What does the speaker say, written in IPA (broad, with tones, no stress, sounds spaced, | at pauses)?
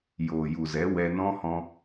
j oː˨ j u˨ z ɛ˨˦ w ɛ˧ n ɔ̃˦ h ɔ̃˧